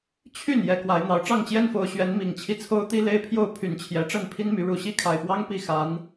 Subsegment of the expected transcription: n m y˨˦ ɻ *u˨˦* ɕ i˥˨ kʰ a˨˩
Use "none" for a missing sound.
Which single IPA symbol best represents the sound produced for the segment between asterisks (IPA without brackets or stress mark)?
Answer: u˨˩